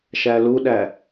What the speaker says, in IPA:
ʃ æ l u ɗ æ

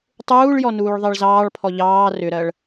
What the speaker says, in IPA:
tˤ uː ɭ j ɔ n uː ɭ ðˤ ɜ ɭ z ɑː ɭ pʰ ɔ ʎ ɑː r ʏ ɾ ɜ ɭ

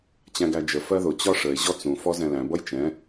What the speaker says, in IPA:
t͡ɕ æ̃ ɡ æ d͡ʒ ə f ɜ ð ʊ t͡ɕ ɒ ʂ ə e̯ ʑ ɔ t͡s ũ f ɔ z ɛ̃ l æ̃ b ʌ j t͡ʃ ɛ̃

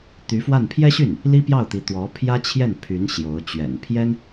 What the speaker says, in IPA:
t̪ y˧˥ f w a˥˩ n pʰ j ɛ˥ ɕ y˥˩ n | l i˥ p j ɑ˥˩ ʊ̯ t̪ i˧˥ t̪ w ɔ˧˥ pʰ j ä˥ t͡ɕʰ j ɛ˥˩ n pʰ y˧˥ n ɕ j o˧˥ ʊ̯ t͡ɕ ɥ ɛ̰˨˩ n pʰ j ɛ˥ n

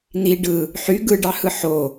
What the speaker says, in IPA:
n̪ i ɖ ɯ | ħ y ɡ ɯ ɖ ɑ h ɯ ħ o

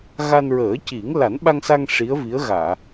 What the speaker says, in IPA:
ɣ a˧ n ɹ əː˨˩˦ c i˨˩˦ ŋ l a˨˩˦ n ɓ a˧ ŋ s a˧ ŋ ʂ i˧˥ ə̯ v i˧˥ ə̯ ɣ aː˨˩˨

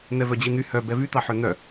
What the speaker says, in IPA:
n̪ ɛ v œ d͡ʑ i n̪ y h œ b ɛ v y t̪ ɑ ħ ø n̪ œ

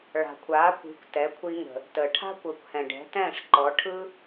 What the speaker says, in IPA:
ɭ a̤˩ kʷʰ aː˩˥ kʷ i̤˩˥ kʷ t ɛ˩˥ kʷʰ i˧ ŋ ə̤˩ | t əː˩ ʈʰ a̤˥ kʷ əː˩˥ kʷ h ɛ̃˩ ɖ ɛ̤˩˥ t ɛ̃ː˥˩ ʂ ǃ ɔ˩˥ ʈʰ ɯ˥

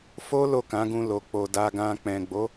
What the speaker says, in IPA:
f o˦ l o˦˨ k ã˨˦ ɡ ũ˧ l o˨ k͡p o˨ d a˧ ɡ ã˧ k͡p ɛ̃˨ ɡ͡b o˨˦

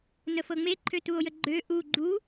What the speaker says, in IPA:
n ə f ɤ ŋ͡m e ǃʰ ø t u o̯ j ə ɡ͡ǃ ø ʔ u ɡ͡ǃ u

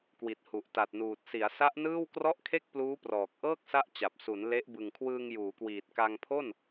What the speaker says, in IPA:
k w i˨˩ t̚ h u˨˩ ʔ t a˨˩ t̚ n uː˨˩ t̚ s i˩˦ a̯ s a˦˥ ʔ n ɯː˥˩ w k r ɔ˥˩ ʔ kʰ e˥˩ k̚ p l uː˦˥ p r ɔː˨˩ k̚ ʔ ɤː˥˩ k̚ s a˦˥ ʔ t͡ɕ a˨˩ p̚ s u˩˦ n l e˦˥ ʔ b ɯ˨˩ ŋ kʰ w ɯː˧ ŋ j uː˩˦ k w iː˨˩ t̚ k a˧ ŋ pʰ o˥˩ n

